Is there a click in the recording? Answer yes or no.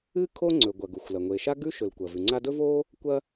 yes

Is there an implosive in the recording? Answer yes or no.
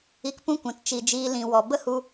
no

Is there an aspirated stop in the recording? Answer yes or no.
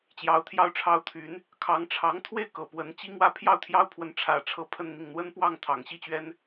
yes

